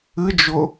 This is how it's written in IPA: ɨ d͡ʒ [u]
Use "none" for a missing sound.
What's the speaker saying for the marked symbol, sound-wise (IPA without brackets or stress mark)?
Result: ʊ